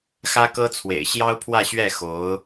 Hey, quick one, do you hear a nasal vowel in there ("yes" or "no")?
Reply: no